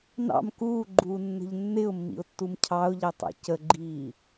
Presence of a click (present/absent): present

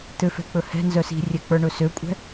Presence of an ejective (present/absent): present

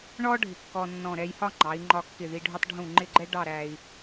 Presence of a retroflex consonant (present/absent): present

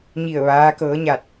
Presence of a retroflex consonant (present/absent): absent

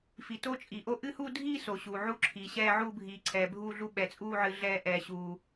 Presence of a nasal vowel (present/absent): absent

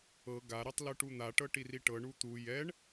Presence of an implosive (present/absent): absent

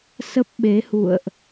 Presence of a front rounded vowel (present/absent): absent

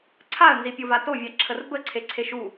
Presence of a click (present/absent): present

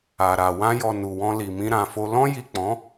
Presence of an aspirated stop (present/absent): absent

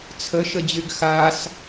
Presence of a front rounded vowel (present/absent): present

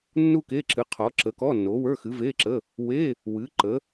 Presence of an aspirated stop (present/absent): present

